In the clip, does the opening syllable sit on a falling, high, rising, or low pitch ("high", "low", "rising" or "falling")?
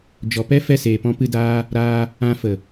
low